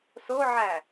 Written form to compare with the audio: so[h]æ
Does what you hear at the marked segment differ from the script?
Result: yes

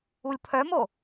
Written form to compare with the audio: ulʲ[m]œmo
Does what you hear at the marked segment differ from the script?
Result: yes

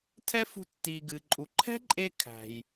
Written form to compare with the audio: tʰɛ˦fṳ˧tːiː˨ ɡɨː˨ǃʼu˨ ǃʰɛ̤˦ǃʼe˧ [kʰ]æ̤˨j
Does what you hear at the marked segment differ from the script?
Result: no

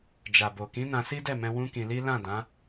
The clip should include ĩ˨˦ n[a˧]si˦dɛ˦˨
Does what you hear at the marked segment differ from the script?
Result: yes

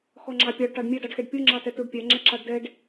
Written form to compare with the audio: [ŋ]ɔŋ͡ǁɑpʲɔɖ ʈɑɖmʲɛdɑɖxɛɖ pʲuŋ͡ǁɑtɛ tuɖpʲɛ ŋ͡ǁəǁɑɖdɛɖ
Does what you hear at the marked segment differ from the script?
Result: yes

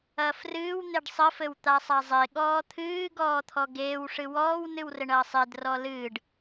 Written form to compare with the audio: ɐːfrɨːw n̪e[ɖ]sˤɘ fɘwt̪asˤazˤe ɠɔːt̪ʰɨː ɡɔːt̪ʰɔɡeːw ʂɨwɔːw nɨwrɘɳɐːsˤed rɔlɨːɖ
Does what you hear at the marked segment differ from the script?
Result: no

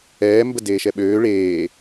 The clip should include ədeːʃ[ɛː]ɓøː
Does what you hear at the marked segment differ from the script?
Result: yes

